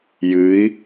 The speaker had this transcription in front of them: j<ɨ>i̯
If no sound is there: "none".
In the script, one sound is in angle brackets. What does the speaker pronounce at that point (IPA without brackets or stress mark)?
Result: ɨ